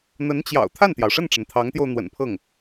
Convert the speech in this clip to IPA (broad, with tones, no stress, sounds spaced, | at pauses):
n̪ ə˧˥ n t͡ɕ j ɑ̰˨˩ ʊ̯ t̪ʰ a˥˩ n t̪ j ɑ˩ ʊ̯ ʂ ə˥˩ n ʈ͡ʂ ə˩ n t̪ʰ ɑ˧˥ ŋ t̪ j o˧ ʊ̯ n̪ w ə̰˨˩ n pʰ ɤ˥˩ ŋ